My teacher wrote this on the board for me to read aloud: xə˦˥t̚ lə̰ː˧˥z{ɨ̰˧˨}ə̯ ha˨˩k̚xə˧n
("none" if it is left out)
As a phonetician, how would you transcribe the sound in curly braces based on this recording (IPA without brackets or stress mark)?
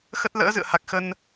ɨ̰˧˨